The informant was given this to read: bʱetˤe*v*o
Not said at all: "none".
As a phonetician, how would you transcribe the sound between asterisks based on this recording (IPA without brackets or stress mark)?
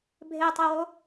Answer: w